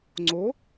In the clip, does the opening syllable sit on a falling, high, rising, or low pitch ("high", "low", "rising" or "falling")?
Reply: rising